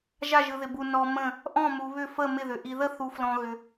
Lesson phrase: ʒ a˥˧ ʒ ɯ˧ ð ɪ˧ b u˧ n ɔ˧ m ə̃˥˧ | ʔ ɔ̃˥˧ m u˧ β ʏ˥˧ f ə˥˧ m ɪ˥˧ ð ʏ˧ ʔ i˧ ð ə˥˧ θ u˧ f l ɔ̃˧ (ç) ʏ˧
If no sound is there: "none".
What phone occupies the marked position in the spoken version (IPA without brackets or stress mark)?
ɣ